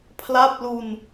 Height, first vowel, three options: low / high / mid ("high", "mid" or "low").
low